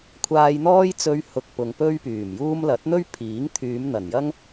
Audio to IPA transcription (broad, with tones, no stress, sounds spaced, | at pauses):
kʷʰ aː˧ j n̪ ɔː˥ j t͡s ɵ˧ ɥ h ʊ˨ k̚ p ʊ˨ ŋ p ɵ˥ ɥ p yː˨˩ m j uː˥ m l ɐ˨˥ t̚ n̪ ɵ˥ ɥ pʰ iː˨˥ ŋ t̪ʰ yː˨˧ m n̪ ɐ˨˩ n j ɐ˥ ŋ